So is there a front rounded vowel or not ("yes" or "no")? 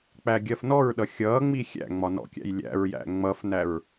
no